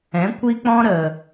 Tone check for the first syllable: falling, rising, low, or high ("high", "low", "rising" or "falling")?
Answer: rising